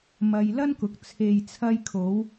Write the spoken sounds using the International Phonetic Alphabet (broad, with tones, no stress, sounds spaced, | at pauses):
m ɐ˧ j l ɐ˥ n k ʊ˨˥ k̚ t͡sʰ e˨ j t͡sʰ ɐ˧ j kʰ o˨˧ w